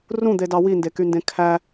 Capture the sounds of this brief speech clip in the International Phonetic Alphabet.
r ũ d̪ e d ɑ w i n d e k y n d ẽ kʰ æ

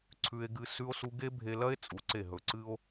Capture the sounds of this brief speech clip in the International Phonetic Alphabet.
ǀʰ ʉ˧ e̯ ɡ ɨ˧ s ʉ˧ o̯ s u˧ ɡ e˥ bʱ e˧ l ɐ˥ e̯ t͡sʼ u˩˧ ǀ e˧˩ ɦ ɵ˩˧ ǀ ɨ˧ o̯

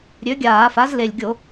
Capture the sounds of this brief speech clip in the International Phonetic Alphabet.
ɾʲ ø˩˥ ɡʲ aː˧˩˧ f a˩˥ z l e˨˩ lʲ ɡʲ o˧˩˧

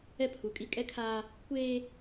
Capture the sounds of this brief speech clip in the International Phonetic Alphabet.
ɛ˦ pʰ u˨˦ kʼ i˦ kʼ ɛ˦ kʰ aː˦ | kʷ eː˦

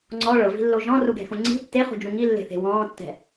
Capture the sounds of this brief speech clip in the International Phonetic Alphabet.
ŋ͡ǀ ɔ ɭ ɤ v i̤ lː o ʒ ɔ̃ r u ɡ ɛ̤ x ũ ŋ͡ǀ i̤ tː e χ ṳ d͡ʒ ũ ŋ i lː e̤ θ e̤ w ɔ̃ː tː ɛ̤

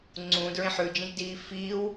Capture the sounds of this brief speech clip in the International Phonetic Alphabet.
ŋ͡ǀ ũ d ɹ ẽ ħ ʉ d͡ʒ ĩ ʒ d iː f iː w

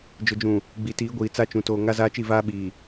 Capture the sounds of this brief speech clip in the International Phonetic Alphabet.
d͡ʒ ʊ˨ d͡ʒ ũ˨ | ɡ͡b i˨ t iː˨˦ ɡʷ iː˨ t͡s a˦ t͡ʃ ũ˨ t oː˨ ŋ a˦ z aː˦ t͡ʃ i˦˨ v aː˦ ɓ iː˨

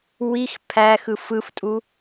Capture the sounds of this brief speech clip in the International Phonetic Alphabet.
w i x pʰ æ x ɯ f ɯ f tʼ u

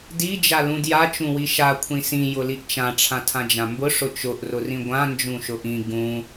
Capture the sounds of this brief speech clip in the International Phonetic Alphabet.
d i d͡ʒ a l ũ d j a t͡ʃ ũ w i ʃ a kʷʰ ĩ s ĩ j ʊ l i ʔ t͡ʃ ã ʈ͡ʂʰ ã tʰ ã d͡ʒ ã m b ʊ ʂ ʊ t͡ʃ ʊ ʔ r ʊ r ĩ ɡʷ ã n d͡ʒ ũ ʃ ʊ ʔ ĩ ɡ ũ

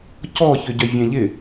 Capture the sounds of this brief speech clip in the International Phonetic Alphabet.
c ɔ ç ʏ ɟ œ vʲ ɛ̃ ʎ ɪ

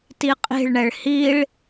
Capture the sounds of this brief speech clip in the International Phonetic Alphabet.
t i qʼ i̤ ɭ ɳ ɛ ɭ h i ɭ

